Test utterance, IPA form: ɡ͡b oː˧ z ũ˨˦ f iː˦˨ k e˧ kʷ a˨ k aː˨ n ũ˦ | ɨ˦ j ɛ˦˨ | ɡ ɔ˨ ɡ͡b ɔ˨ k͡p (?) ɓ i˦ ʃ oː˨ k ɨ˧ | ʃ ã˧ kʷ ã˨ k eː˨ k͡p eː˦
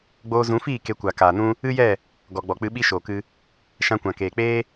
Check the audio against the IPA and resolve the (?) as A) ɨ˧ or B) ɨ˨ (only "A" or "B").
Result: A